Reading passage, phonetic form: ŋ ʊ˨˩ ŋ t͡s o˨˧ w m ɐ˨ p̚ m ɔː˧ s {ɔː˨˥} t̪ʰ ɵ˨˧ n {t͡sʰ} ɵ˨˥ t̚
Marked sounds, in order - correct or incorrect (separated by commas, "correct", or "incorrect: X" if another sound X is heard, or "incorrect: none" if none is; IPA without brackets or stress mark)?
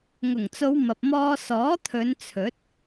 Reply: correct, correct